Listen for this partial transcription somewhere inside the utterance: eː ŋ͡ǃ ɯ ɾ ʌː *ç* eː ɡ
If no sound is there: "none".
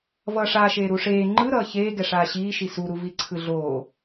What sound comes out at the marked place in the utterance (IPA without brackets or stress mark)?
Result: ç